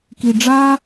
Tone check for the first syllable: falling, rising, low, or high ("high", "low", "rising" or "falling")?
low